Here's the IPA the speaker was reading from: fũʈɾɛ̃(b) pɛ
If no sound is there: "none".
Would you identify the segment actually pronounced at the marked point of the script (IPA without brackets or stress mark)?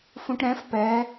f